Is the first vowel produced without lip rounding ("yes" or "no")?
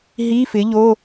yes